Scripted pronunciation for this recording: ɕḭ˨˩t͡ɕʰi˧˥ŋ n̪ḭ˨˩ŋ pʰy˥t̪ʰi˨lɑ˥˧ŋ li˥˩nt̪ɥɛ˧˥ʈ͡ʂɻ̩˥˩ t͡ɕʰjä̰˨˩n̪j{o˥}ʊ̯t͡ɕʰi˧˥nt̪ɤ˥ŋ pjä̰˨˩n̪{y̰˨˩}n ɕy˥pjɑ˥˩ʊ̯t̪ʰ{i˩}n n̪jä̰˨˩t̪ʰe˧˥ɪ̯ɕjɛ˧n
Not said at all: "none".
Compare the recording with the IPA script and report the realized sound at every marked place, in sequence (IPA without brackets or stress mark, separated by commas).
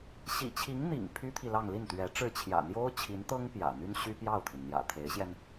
o˥, y˥, i˩